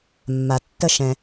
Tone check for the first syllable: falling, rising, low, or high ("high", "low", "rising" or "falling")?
low